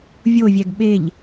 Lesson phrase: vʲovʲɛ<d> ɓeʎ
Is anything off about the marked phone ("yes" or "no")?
yes